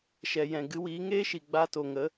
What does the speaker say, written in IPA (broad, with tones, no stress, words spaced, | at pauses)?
ʃɛ˨ jɛ̃˨ɡɨ˨˦wiː˨˦ ŋeː˦ʃi˨ɡ͡baː˧ to˨ŋə˨˦